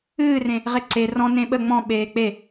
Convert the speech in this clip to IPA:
ɨː r ẽ | ʁ e ǀ e r ɔ̃ n ẽ ɓ ə ŋ͡m ɔ̃ ɓ eː k͡p e

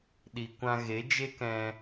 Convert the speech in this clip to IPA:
ɗ i˨ kʷ ã˧ ɣ e˨˦ d͡ʒ e˦ k ɛ̃˧

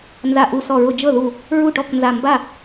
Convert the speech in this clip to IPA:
n z a˧˩ ʔ u˧˩ s ɔ˧˩ ɹ ʊ˧˩ d͡ʒ ɤ˥˩ ð u˧˩ | ɹ u˥˩ ʈ ɔ˥˩ k n z a˧˩ m b a˥˩

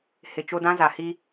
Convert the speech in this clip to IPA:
h ɪ˨ t͡ʃ o˦ d ã˦ z a˨ h i˦

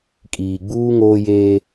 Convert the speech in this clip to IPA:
kʼ iː˨ ɡ͡b uː˦ ŋ oː˦ j eː˦

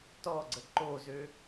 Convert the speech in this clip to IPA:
t ɔ ɡ͡ǀ ə ǃ o z ø

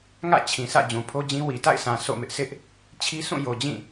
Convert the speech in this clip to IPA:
ŋ ä̰˦˨ t͡ɕʰ ĩ˨ s ä̰˦˨ d͡ʑ ũ˨ pʰ o˦ d͡ʑ ĩ˦ w i˨ t a̰˦˨ ɪ̯ s ã˨ sʰ o̰˦˨ m ɪ˦ ʔ sʰ ɪ˦ ʔ | t͡ɕʰ i˦ s ũ˦˨ j o˨ d͡ʑ ĩ˦˨

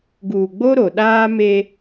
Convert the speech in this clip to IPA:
ɡ uː˨ ɡ͡b o˦ ɾ o˨ ɗ aː˦ m e˦

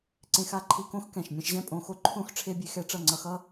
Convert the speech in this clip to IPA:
ǀ ẽ˧ x a˧ ǃʰ i˧ k õ˦ x k ɛ̃˨ ʃ mʲ ɛ̃˧ ʃ ʑ ɛ̃˦ pʼ õ˨˦ x o˦ ǃʰ õ˦ x ʈ͡ʂʰ e˦ bʲ e˧ x ɛ˦ ʈ͡ʂ ʌ˦˨ ŋ͡ǀ ʌ˧ x ʌ˦

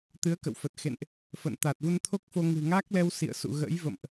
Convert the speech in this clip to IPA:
t̪ ɨ˨˦ ə̯ k ə̰˧˨ w f ə˨˩ t̚ x ḛ˧˨ n ʔ | f ə̰˧˨ n t̪ a˨˩ t̚ v u˧ n t̪ʰ o˦˥ k̚ f o˧ ŋ ɨ̤˨˩ ŋ a˦˥ k̚ l ɛ˧ w s ḭ˧˨ ə̯ s ṵ˧˨ ɣ ə̰˧˥ j v ə̰˧˨ m ʔ

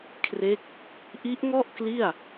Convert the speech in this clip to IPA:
kʰ r e˦˥ k̚ | ʔ i˦˥ ʔ ŋ ɔ˥˩ ʔ k l i˥˩ a̯

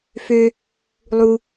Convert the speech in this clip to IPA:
f ø | lˠ u

